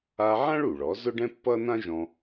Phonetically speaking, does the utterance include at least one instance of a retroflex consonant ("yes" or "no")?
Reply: yes